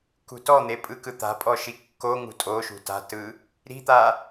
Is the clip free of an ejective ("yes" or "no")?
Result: no